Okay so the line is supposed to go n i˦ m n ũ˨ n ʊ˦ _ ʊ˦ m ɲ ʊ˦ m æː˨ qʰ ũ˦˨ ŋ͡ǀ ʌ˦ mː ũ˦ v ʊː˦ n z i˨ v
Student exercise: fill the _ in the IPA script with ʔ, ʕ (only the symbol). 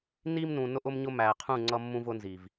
ʔ